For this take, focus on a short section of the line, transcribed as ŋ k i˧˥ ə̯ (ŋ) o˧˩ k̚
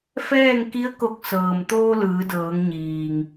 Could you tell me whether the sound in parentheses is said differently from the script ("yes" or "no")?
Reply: yes